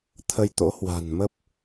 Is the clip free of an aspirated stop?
no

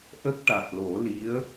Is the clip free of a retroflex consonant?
no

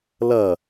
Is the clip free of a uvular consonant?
yes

